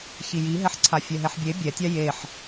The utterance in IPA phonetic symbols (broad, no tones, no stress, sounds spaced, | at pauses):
ç i j i ɦ ɛ ħ ǀʰ a fʲ ɛ ɦ ɛ ħ bʲ e bʲ ɛ tʲ a j e ħ